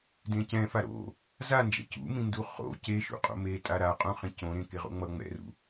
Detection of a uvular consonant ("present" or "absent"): present